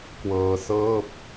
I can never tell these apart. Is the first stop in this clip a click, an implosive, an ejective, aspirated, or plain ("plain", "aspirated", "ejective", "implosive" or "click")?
plain